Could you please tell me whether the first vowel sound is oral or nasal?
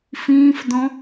nasal